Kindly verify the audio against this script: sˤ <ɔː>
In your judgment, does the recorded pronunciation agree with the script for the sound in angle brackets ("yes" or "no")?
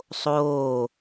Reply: no